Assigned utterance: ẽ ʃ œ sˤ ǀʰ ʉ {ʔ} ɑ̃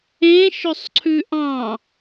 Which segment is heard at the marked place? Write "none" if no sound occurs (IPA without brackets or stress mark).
ʔ